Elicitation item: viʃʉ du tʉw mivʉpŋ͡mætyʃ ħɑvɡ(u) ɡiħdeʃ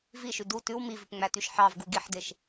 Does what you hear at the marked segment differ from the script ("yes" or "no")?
no